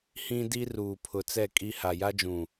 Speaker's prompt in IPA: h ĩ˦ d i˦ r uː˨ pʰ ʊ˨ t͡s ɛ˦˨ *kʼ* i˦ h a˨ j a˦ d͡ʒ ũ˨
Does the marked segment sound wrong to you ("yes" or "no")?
no